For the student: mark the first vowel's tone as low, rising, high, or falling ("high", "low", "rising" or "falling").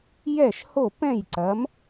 falling